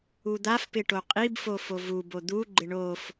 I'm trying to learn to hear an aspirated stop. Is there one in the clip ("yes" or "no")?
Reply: no